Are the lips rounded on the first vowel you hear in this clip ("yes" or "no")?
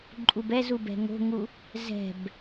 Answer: yes